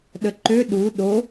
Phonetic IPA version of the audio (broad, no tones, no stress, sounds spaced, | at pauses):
ɗ ə ǃ ø ɗ u ɗ o